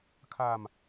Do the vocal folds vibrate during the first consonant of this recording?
no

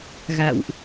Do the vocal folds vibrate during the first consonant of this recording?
yes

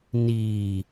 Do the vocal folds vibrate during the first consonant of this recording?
yes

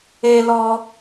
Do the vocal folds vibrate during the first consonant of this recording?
yes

